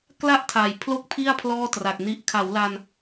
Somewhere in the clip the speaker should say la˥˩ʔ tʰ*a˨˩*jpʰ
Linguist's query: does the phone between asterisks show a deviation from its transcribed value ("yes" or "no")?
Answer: no